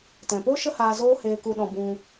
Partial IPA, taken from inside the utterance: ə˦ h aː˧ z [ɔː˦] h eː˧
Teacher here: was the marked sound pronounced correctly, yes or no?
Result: no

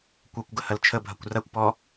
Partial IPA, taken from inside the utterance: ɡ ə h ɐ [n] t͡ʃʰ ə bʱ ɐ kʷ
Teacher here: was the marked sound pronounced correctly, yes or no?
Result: no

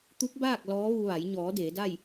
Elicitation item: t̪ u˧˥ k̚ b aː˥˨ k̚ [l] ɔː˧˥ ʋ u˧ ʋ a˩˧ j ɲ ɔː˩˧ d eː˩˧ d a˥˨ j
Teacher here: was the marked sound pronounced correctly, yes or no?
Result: yes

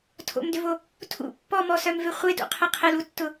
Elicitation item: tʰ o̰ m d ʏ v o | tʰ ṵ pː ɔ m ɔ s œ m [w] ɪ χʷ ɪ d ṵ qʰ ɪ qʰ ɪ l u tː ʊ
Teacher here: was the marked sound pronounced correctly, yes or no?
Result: no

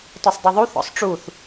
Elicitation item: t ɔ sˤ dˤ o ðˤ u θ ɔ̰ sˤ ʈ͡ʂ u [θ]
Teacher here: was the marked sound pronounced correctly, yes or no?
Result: yes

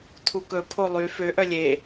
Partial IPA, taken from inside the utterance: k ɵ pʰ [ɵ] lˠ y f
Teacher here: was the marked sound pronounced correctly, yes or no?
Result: no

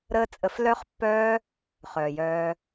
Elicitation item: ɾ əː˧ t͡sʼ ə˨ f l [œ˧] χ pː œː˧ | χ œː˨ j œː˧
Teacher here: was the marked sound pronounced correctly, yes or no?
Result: yes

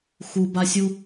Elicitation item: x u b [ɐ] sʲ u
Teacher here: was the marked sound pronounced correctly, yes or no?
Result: no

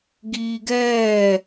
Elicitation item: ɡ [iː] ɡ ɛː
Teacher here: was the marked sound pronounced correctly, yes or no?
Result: yes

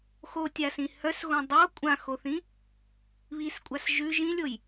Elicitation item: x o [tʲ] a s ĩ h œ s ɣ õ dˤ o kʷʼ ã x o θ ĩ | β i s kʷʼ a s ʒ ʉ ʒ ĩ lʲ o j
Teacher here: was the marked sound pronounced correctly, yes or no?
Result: yes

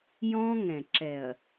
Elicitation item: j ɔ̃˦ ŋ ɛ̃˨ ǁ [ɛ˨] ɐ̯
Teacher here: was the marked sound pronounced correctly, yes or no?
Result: yes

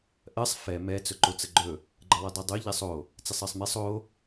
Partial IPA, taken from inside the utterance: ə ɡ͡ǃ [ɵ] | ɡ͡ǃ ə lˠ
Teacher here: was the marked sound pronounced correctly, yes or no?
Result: yes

